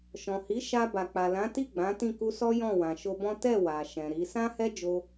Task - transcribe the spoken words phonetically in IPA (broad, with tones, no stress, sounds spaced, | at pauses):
ʃ ɔ̃˨ h i˨˦ ʃ a˧ b a˨ k͡p a˨ l ã˨˦ t i˦˨ ɡ͡b ã˨˦ t ĩ˦˨ k u˧ s ɔ˦ j ɔ̃˦˨ w ã˨ ʃ o˧ b ɔ̃˦ t ɛ˦˨ w a˨ ʃ ɛ̃˨ ɾ i˨˦ s ã˦ h ɛ˦ d͡ʒ o˧